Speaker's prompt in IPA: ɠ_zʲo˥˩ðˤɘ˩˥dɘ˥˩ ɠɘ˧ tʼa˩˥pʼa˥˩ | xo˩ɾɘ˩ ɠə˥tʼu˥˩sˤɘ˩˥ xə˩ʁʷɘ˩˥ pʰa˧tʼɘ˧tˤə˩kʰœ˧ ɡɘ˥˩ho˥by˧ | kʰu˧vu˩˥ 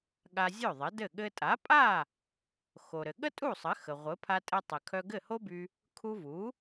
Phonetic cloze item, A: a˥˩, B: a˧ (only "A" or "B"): B